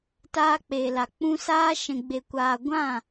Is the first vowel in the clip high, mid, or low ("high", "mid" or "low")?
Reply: low